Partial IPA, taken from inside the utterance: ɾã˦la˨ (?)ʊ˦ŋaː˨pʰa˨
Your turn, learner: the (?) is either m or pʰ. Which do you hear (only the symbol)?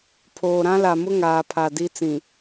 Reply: m